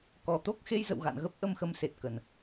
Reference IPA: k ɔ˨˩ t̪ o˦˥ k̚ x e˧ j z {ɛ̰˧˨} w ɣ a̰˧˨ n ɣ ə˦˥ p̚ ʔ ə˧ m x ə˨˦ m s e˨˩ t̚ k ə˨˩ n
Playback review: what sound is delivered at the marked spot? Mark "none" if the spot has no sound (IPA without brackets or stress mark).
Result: ə̰˧˨